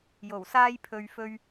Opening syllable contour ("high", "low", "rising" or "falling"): low